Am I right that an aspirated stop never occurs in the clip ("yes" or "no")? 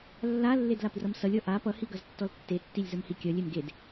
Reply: yes